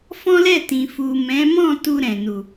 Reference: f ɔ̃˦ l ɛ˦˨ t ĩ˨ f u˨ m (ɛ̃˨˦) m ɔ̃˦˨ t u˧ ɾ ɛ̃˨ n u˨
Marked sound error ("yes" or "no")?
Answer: no